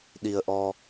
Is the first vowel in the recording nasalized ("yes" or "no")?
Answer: no